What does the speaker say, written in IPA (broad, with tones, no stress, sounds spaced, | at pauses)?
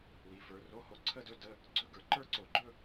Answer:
w i˨˦ f ə˞˨˦ r o˧˥˧ h o˧˥˧ ǀʰ ə˥˧ d ɵ˧˥˧ d ə˧˥˧ | ɡ͡ǀ ɵ˧˥˧ ɡ ə˞˧˩˧ ǃ ə˞˥˧ ǀ o˧˩˧ ɡ͡ǃ ɵ˥˧